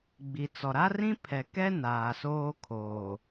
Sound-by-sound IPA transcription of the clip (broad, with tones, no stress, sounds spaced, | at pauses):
ɡ͡b i˨ t͡s ɔ˨ ɾ a˦ r ĩ˦ pʰ ɛ˨ k ɛ˦ n aː˨ s oː˦ kʰ oː˨